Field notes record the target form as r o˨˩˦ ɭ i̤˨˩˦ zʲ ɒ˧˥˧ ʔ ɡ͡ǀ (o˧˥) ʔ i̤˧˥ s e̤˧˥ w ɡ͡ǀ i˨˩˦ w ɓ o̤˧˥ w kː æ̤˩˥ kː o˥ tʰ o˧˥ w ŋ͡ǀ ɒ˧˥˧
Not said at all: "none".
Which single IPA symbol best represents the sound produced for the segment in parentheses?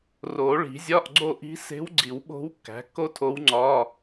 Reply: o˦˨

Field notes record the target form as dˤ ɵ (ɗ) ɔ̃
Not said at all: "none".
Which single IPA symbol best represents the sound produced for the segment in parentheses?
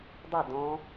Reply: d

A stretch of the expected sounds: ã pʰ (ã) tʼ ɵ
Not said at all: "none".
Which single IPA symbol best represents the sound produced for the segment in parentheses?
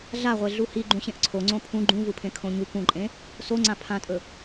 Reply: ã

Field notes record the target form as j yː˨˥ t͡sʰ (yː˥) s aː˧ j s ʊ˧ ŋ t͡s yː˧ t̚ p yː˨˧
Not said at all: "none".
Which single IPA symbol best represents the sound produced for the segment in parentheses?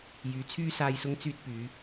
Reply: yː˥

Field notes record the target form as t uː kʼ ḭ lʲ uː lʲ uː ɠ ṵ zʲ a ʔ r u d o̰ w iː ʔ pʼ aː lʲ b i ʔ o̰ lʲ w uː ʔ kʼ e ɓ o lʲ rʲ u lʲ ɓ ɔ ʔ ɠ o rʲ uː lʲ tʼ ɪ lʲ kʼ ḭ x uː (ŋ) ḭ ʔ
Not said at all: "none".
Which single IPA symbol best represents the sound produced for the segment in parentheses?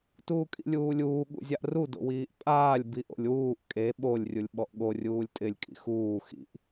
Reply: x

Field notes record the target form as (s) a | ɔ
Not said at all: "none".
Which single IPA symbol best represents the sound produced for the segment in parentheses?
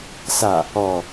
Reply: s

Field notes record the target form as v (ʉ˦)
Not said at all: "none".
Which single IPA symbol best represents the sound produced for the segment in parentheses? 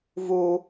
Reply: u˦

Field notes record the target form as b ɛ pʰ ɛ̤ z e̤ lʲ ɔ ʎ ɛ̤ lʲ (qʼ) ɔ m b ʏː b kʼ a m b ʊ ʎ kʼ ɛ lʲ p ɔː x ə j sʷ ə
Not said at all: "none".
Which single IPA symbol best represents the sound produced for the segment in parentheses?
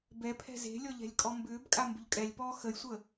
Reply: kʼ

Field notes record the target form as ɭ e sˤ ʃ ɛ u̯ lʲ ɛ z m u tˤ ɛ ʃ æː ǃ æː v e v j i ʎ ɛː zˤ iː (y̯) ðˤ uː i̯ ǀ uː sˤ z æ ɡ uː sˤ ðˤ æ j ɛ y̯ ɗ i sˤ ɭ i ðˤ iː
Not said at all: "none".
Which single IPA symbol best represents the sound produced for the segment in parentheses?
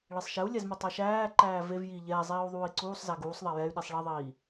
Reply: u̯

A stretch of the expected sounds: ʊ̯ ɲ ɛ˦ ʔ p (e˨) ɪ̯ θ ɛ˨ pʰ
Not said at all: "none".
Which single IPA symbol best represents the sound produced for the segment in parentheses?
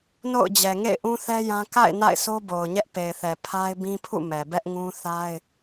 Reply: e˨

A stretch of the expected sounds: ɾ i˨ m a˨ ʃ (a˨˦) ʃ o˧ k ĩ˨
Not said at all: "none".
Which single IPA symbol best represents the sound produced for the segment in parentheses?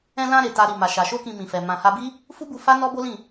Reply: a˨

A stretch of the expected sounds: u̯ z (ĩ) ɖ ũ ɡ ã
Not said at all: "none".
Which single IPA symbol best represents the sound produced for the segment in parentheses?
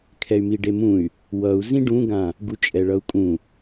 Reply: ĩ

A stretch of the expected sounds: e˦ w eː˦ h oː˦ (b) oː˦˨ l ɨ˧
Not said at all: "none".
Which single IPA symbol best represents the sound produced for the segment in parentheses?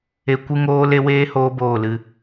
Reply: b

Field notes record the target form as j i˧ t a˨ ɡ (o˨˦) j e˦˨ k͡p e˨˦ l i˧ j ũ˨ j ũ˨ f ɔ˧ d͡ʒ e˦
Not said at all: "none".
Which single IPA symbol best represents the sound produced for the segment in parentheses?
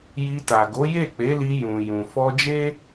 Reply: o˨˦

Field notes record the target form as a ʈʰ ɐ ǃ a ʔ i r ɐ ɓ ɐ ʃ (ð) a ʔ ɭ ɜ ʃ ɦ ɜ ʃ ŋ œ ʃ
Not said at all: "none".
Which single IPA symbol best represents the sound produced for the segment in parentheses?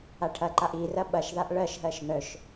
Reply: ð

